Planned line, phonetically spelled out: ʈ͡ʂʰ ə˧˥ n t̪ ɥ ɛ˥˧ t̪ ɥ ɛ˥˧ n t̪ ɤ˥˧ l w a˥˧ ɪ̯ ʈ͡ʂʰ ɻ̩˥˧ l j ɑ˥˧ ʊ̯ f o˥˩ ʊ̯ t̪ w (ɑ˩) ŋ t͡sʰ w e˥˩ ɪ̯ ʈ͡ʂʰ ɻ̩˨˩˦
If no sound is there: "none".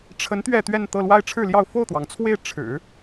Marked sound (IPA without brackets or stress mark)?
ɑ˩